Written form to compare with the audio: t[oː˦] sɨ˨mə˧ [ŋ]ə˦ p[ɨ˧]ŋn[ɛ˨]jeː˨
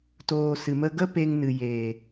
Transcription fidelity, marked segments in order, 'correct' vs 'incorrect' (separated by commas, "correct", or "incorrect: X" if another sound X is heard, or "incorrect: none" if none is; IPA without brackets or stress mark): incorrect: oː˧, incorrect: ɡ, incorrect: e˧, incorrect: ɨ˨